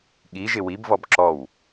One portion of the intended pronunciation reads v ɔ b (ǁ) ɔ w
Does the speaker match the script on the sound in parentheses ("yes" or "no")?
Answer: yes